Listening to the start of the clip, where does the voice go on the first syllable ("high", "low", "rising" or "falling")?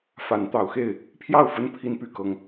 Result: rising